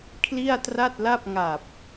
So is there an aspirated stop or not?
yes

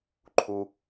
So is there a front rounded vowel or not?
no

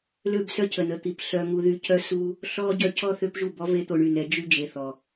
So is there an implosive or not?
no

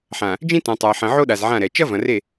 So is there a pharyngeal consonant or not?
yes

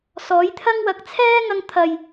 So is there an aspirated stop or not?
yes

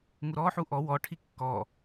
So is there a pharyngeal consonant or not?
yes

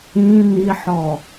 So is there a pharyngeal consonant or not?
yes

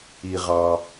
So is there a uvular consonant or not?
yes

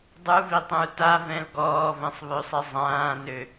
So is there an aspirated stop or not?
no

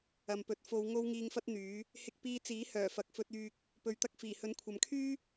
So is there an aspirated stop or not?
yes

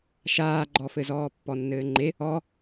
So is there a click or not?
yes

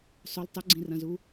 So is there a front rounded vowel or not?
yes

